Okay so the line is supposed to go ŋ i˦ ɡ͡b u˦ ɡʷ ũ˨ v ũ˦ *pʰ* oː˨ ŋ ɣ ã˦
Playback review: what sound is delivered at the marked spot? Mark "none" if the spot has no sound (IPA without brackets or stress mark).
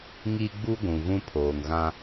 pʰ